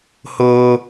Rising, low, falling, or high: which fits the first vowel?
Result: high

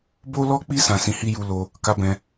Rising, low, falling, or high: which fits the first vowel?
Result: high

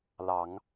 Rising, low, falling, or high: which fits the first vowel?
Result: rising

